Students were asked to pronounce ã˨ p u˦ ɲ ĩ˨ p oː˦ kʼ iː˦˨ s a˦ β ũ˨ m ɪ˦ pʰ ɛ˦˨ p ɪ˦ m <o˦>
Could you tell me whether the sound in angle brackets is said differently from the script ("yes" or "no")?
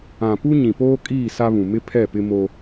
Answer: no